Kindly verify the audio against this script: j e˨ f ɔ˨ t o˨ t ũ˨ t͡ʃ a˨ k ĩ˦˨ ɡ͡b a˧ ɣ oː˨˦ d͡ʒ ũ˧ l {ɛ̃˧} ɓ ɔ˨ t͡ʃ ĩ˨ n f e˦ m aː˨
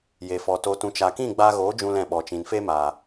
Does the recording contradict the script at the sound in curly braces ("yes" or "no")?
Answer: yes